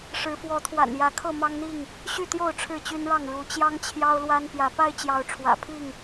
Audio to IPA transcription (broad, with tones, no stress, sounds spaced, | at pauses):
ʂ ɻ̩˨˦ f w ɔ˨˦ t̪ʰ w a̰˨˩ n j ä˨˦ kʰ ɤ˥˨ m ɑ˦ ŋ n̪ i˥˨ ŋ | ɕ y˥˨ t̪ j o˥˨ ʊ̯ ʈ͡ʂʰ ɻ̩˥˨ t͡ɕ y˦ n ɻ ɑ˥˨ ŋ ɻ u˨˦ t͡ɕ j ɑ˦ ŋ t͡ɕʰ j ɑ˦ ʊ̯ l w a˦ n p j ä˨˦ p a˦ ɪ̯ t͡ɕ j ɑ˨˦ ʊ̯ ʈ͡ʂʰ w ä̰˨˩ pʰ i˥˨ ŋ